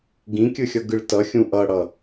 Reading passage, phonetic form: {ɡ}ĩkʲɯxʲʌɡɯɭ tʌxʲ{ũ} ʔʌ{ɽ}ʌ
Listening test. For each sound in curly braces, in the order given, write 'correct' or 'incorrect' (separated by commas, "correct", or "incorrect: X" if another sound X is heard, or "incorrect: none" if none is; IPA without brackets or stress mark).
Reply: correct, correct, correct